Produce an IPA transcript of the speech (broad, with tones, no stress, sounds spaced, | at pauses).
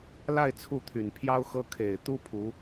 l a˥˧ ɪ̯ t͡sʰ u˥˩ t̪ʰ y˨˩ n pʰ j ɑ˥ ʊ̯ x ɤ˥ kʰ e˨˩ ɪ̯ t̪ u˥ pʰ u˧˥